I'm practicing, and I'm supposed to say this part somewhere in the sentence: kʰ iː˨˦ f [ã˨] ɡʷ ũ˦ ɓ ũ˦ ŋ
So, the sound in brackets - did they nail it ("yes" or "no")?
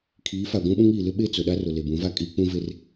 no